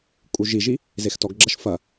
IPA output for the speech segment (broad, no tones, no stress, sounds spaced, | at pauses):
kʼ u ʒ i ʒ i | z e x t ɔ ɡ ɡ͡ǁ ɐ ʃ f ɐ